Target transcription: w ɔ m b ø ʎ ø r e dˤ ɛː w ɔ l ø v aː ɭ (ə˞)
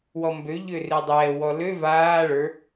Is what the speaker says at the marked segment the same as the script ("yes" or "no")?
yes